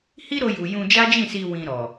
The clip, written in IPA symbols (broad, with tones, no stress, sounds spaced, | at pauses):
h i˦ ɾ o˧ j u˨ j ũ˧ d͡ʒ a˦ d͡ʒ ĩ˦˨ s i˧ w ĩ˧ ɾ ɔ˨